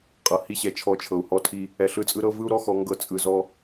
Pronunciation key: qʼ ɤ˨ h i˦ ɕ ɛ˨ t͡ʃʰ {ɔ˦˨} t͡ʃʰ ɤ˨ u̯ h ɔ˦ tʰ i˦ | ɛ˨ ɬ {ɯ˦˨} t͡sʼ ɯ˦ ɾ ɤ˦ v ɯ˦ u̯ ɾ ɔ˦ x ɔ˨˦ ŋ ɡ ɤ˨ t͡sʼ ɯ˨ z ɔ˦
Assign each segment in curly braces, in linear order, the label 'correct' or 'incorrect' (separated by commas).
correct, correct